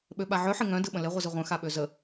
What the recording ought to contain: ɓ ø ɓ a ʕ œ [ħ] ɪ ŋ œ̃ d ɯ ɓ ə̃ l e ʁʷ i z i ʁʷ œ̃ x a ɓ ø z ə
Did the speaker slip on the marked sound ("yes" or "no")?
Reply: no